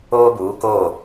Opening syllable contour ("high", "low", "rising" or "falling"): high